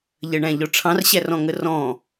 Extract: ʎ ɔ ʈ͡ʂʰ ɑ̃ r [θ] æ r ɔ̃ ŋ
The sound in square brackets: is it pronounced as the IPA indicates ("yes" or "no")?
no